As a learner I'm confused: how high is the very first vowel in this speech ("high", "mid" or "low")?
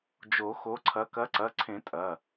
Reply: mid